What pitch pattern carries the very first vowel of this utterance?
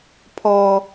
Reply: high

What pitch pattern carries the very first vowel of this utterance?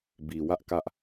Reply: low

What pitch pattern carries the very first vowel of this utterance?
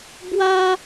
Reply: high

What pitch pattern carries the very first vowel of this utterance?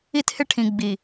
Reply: high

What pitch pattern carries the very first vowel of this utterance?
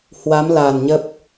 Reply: rising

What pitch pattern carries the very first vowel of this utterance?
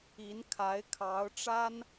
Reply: rising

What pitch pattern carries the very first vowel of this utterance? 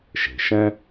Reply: low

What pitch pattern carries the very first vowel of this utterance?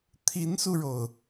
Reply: rising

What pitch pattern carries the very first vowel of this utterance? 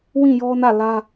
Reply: falling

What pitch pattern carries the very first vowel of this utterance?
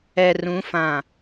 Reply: low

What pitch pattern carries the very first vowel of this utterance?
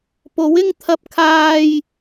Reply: rising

